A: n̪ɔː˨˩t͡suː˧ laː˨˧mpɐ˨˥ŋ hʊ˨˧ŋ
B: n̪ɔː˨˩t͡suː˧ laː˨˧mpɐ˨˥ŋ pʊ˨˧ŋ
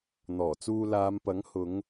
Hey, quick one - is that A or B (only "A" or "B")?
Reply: A